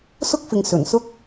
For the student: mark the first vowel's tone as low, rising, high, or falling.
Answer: high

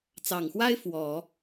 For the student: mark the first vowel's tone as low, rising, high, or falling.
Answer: low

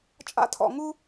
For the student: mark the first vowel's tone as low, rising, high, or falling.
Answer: high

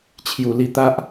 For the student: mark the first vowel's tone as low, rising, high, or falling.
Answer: low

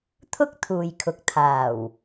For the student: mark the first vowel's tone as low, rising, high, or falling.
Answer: high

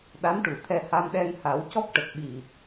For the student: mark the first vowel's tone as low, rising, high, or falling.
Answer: rising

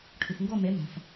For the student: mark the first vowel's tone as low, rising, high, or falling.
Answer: low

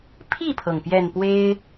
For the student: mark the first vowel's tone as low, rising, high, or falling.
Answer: falling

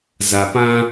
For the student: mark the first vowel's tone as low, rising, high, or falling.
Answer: low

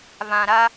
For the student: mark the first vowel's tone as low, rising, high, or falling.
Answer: low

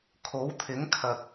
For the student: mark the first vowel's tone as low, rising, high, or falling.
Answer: rising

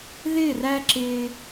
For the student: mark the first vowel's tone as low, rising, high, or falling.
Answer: falling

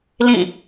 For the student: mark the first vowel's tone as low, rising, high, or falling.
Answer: falling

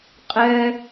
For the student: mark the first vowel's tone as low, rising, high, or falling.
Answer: high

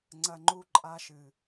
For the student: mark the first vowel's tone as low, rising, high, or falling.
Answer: low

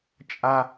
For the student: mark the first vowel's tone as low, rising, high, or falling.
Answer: high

